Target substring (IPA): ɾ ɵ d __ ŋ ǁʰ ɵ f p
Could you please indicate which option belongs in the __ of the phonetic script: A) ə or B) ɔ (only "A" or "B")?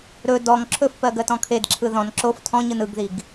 B